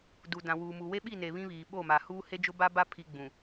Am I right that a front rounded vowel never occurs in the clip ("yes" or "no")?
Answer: yes